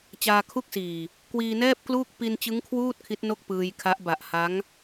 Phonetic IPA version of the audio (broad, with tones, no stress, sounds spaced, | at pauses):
t͡ɕ aː˧ kʰ u˥˩ k̚ s iː˨˩ | k w iː˧ n ɛː˥˩ p̚ k l uː˥˩ k̚ p i˧ n t͡ɕ ɯ˦˥ ŋ kʰ w uː˥˩ t̚ kʰ i˦˥ t̚ n o˥˩ k̚ p ɯː˧ j kʰ a˦˥ ʔ b a˨˩ ʔ h a˦˥ ŋ